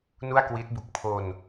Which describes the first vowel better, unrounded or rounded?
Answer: rounded